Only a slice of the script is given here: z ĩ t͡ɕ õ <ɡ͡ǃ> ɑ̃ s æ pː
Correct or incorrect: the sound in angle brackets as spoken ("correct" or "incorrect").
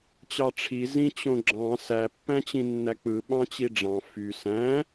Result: incorrect